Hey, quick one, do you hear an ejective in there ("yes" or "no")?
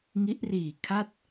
no